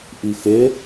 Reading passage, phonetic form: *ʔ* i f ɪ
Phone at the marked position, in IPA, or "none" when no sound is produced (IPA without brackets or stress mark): ʔ